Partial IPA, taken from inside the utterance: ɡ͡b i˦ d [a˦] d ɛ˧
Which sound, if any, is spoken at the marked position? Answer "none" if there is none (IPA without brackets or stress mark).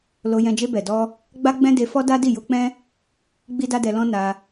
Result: a˦